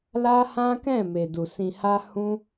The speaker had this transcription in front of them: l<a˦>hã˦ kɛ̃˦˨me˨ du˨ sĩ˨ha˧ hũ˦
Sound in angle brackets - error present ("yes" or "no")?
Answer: no